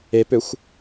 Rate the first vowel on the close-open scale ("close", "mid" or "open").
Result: mid